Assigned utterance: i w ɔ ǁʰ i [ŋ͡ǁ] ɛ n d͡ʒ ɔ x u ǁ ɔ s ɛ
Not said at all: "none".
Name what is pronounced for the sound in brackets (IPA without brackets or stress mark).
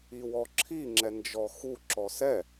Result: ŋ͡ǁ